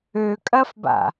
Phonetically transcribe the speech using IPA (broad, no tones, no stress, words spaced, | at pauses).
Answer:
økʼɐfba̰